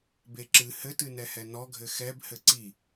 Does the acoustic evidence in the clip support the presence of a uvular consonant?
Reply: no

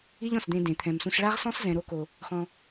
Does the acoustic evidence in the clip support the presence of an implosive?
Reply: no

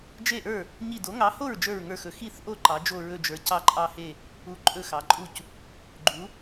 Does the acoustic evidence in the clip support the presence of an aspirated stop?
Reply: no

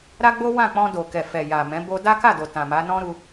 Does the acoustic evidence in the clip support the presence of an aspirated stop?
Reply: no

